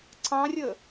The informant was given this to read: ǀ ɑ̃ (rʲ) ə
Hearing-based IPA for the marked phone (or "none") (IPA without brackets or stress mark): rʲ